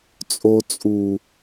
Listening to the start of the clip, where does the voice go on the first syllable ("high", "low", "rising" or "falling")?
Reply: high